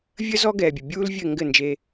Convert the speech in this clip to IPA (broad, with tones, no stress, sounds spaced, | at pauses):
vʲ ə˦ z ɔ˦ ɡ ɛː˨ bʲ ə˨ bʲ uː˦ l vʲ ɘ˦˨ ŋ ɡ ɘ˦˨ n d͡ʒ e˧